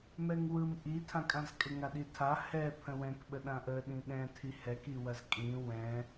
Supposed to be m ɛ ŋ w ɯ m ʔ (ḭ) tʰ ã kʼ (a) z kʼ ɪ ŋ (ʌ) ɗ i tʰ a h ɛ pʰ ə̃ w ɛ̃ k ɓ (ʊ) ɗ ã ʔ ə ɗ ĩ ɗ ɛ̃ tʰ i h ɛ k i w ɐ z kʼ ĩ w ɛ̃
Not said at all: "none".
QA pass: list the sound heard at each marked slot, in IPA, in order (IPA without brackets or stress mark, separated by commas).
i, ã, a, ə